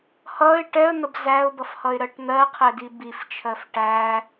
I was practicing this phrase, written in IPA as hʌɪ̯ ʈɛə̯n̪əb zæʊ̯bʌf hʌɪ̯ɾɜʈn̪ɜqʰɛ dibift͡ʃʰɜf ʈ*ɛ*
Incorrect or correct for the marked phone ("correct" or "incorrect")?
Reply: incorrect